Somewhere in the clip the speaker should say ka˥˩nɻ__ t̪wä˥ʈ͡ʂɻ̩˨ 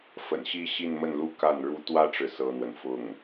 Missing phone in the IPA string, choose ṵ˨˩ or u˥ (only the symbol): u˥